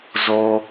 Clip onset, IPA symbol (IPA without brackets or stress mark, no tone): z